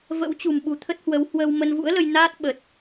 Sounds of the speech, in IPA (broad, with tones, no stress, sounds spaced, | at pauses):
v ə̰˧˥ w t͡ɕ ṳ˨˩ m ɓ ṳ˨˩ t̪ʰ ə˦˥ t̚ h w ə˨˦ w h w əː˧ w m ə˧ n v ṵ˧˥ ə̯ l ə˧ j n aː˦˥ t̚ ɓ ə˨˩ t̚